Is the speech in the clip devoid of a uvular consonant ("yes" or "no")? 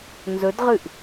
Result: no